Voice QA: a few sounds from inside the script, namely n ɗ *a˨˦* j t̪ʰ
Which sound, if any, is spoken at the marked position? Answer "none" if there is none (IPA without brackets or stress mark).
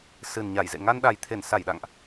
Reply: a˨˩